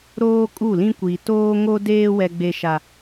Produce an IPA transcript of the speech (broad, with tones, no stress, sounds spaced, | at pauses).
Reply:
ɾ oː˦ kʼ u˦˨ l ĩ˦ kʷ i˨ t oː˦ ŋ o˦ d eː˦ w ɛ˦ ɡ͡b e˦ ʃ a˦